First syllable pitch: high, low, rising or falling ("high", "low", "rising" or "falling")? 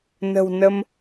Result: low